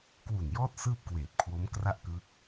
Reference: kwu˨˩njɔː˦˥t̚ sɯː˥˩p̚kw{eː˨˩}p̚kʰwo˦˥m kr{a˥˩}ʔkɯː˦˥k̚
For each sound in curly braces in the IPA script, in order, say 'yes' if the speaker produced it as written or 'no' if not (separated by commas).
yes, yes